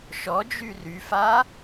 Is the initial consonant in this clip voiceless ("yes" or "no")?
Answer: yes